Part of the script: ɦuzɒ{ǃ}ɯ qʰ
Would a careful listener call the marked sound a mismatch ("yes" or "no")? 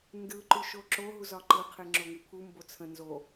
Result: no